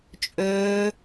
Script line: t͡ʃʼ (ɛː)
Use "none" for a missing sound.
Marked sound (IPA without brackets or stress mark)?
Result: øː